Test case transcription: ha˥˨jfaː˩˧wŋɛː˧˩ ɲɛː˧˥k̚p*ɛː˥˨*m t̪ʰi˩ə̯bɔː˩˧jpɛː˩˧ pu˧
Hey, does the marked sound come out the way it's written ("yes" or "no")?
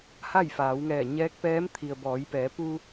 no